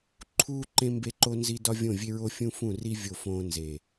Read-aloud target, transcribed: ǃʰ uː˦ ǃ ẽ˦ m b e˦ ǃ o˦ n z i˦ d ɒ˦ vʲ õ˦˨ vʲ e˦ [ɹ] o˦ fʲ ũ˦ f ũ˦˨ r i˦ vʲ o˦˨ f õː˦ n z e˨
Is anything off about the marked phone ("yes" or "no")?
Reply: no